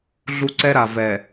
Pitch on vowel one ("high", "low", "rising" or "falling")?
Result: high